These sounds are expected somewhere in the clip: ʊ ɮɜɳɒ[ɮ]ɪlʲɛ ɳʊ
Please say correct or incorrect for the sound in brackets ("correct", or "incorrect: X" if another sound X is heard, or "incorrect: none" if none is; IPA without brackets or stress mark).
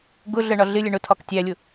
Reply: correct